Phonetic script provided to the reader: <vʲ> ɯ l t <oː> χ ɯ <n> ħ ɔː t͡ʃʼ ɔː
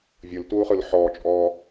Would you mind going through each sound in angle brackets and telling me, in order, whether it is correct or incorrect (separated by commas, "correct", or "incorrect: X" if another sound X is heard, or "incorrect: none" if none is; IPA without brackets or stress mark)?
correct, incorrect: uː, incorrect: l